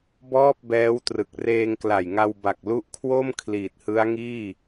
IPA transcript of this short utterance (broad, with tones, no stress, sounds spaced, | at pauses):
b ɔː˥˩ p̚ b ɛː˦˥ w t r ɯ˨˩ k̚ r eː˧ ŋ k l a˨˩ j ŋ a˧ w b a˨˩ k̚ l u˦˥ ʔ kʰ w o˥˩ m kʰ l iː˨˩ t̚ h ɯ˦˥ a̯ ŋ iː˥˩